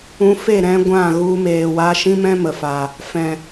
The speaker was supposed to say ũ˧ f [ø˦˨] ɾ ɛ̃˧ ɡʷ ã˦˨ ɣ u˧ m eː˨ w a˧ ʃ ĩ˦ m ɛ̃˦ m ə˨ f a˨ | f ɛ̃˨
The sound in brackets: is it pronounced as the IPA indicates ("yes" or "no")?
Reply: no